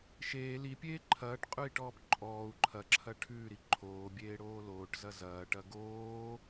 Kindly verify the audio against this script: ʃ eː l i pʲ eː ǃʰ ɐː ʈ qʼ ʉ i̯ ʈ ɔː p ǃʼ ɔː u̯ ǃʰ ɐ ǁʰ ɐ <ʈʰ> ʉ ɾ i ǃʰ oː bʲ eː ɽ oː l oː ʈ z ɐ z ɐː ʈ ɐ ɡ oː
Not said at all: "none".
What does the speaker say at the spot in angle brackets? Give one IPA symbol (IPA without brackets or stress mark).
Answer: ʈʰ